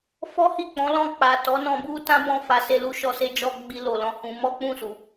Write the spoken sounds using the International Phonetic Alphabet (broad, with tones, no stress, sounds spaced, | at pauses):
f ɔ˦ h i˦˨ k͡p ɔ̃˨˦ l ɔ̃˦˨ k͡p a˨ t ɔ˨˦ n ɔ̃˧ b u˦ t ã˦ b ɔ̃˦ f a˧ s e˧ l u˧ ʃ ɔ˧ s e˧ d͡ʒ ɔ˧ ɡ͡b i˧ l o˨ l ɔ̃˨ h ũ˧ m ɔ˦ k͡p ũ˦˨ s u˨